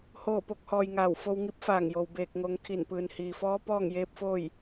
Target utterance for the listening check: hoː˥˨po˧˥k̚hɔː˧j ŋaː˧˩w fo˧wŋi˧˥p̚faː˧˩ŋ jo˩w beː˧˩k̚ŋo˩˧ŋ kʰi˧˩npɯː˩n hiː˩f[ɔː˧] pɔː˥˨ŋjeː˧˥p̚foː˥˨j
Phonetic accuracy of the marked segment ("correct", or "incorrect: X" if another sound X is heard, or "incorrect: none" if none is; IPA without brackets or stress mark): incorrect: ɔː˧˥